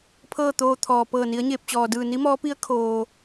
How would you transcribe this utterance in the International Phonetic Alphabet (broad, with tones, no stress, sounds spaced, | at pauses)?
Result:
pʰ ɤː˥˨ t̪ oː˧ t̪ʰ ɔː˩ p ɤː˧˩ n i˩˧ ə̯ ɲ eː˧˩ p̚ t͡ɕ ɔː˩ d ɯː˧˩ n i˧˥ m ɔː˧˥ p i˧˥ ə̯ kʰ oː˩